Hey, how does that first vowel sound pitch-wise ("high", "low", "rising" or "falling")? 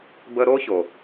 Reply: high